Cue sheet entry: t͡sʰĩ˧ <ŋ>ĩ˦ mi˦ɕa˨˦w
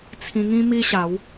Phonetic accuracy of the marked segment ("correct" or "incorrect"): correct